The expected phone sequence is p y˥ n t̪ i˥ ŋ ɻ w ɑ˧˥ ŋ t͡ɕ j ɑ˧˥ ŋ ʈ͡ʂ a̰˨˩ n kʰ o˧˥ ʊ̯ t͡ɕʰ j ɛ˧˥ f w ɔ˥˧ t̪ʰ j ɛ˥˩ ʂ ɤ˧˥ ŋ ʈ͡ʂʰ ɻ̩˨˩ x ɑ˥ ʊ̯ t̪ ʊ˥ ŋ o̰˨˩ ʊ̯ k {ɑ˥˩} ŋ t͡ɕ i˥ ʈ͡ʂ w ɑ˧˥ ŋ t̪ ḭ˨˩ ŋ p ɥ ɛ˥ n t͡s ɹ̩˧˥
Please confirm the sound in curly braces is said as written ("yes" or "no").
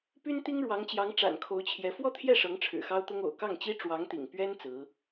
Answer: yes